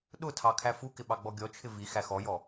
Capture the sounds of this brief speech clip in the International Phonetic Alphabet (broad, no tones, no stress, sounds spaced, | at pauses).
ɗ ʊ tʰ ɑ kʰ æ f u k ɪ ɓ ɑ ɡ͡b ɔ ɡʲ ɔ t͡ʃʰ ɪ v i x æ x ɔ j ɔ